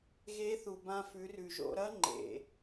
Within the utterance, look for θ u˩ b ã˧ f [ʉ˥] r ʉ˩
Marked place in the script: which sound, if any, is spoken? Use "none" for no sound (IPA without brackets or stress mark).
ʉ˩˧